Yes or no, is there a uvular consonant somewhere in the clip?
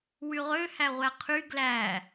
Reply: yes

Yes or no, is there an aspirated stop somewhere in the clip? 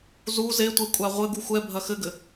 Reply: no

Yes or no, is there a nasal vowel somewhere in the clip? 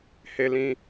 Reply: yes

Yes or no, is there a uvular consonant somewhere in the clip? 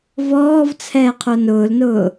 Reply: yes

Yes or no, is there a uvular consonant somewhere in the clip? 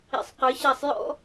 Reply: yes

